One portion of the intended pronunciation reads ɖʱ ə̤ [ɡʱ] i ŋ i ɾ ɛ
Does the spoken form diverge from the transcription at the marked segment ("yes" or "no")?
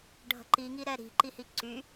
yes